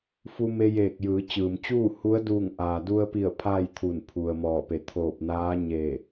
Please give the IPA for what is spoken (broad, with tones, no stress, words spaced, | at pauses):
fu˧me˧jeː˧˩k̚ jɯː˩˧t͡ɕɯː˩mt͡ɕuː˥˨hu˧˥ə̯ duː˧˩ŋʔaː˩du˧ə̯pi˧˩ə̯ pʰaː˥˨jt̪ʰu˧˩n pʰu˩ə̯mɔː˧˩pe˩˧ t̪ʰoː˧˩p̚naː˧˥ɲe˧˩